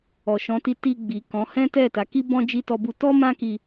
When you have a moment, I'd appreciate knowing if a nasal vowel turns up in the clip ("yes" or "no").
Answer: yes